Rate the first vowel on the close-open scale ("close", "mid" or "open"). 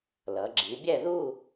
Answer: mid